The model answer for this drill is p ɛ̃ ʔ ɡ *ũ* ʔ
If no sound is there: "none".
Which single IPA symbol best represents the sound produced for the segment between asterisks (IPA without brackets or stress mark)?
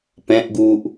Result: u